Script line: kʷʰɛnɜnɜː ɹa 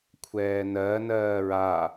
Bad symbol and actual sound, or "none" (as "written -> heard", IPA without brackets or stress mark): ɛ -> ɛː